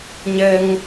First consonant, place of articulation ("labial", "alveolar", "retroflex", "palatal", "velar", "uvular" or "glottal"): palatal